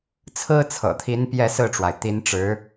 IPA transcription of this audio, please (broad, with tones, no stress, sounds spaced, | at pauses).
t͡sʰ ɹ̩˥ t͡sʰ ɤ̰˨˩ t̪ʰ i˧˥ n p j ɛ˥˧ s ɹ̩˥˩ ʈ͡ʂ w a˩ ɪ̯ t̪ i˧˥ n ʈ͡ʂ ɻ̩˧˥